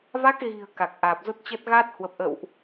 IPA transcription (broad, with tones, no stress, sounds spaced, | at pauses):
v a˦˥ k̚ ɣ i̤˨˩ ə̯ k a˨˩ k̚ ʔ aː˨˩ p̚ z o˦˥ t̚ t͡ɕ ə˦˥ t̚ ɣ a˦˥ t̚ h w ə˨˩ p̚ ʔ ə̰˧˨ w ʔ